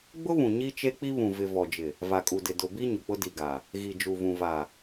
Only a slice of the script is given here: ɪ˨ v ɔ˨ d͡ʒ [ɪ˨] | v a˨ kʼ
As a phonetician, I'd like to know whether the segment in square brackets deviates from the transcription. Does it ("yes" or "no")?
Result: no